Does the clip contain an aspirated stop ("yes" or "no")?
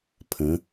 yes